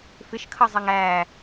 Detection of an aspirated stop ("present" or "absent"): present